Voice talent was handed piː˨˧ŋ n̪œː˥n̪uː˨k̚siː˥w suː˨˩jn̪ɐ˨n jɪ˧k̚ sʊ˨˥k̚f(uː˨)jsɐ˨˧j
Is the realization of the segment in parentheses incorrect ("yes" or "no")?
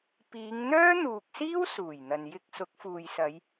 no